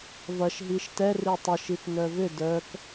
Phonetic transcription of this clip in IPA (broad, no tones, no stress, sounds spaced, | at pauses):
v ɐ ʃ ɦ i ʃ t ɛ r i tˤ ɐ ʃ i t n œ v ʏ d œ k